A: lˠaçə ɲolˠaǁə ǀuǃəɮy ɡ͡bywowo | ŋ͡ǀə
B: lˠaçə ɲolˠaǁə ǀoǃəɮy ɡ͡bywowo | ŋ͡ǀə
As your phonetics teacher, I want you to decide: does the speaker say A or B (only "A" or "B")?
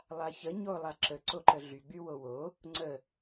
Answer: B